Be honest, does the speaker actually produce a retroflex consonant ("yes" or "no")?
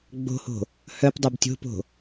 no